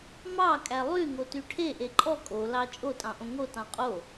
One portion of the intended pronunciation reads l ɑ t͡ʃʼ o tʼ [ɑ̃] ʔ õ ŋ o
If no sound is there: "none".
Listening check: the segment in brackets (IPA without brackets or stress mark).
ɑ̃